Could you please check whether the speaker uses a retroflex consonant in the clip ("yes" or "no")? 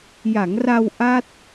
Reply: no